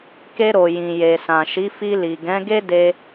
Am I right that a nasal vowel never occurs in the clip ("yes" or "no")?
no